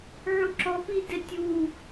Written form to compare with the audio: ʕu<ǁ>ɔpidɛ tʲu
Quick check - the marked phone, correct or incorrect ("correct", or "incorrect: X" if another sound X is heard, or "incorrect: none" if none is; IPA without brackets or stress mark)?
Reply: correct